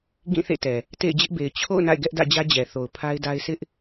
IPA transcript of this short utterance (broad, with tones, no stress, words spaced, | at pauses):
ɡĩ˦˨ θḛ˦˨tɛ˨ | tḛ˦˨ɪ̯d͡ʑɪ˦ʔbe˨ɪ̯ t͡ɕʰo̰˦˨ʊ̯ na̰˦˨ɪ̯ɡɛ˦ʔ dä̰˦˨d͡ʑä˦d͡ʑɛ˨θo˨ʊ̯ pʰa˦ɪ̯da˦ɪ̯ sʰɪ˦ʔ